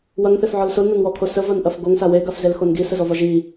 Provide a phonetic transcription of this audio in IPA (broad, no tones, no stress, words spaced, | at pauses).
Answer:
wɐŋθefʕɔl solnɐnwɔkʰo səvɐnʔɐf ɡoŋsa weɡafzelxon ɡisəzɔvɒ ʒi